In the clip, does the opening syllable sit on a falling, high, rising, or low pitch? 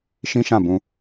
high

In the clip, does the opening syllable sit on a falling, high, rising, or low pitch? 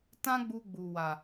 high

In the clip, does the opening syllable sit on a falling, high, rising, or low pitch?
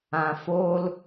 low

